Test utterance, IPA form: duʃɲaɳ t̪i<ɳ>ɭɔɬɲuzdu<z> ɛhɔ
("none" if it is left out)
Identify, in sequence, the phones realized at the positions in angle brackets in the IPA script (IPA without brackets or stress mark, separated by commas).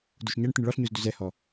ɳ, z